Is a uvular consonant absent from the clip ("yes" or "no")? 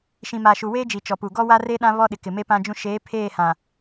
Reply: yes